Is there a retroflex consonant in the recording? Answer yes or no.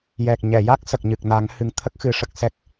yes